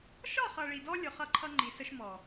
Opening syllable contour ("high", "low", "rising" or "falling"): falling